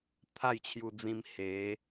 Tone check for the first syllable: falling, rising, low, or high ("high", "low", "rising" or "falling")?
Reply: falling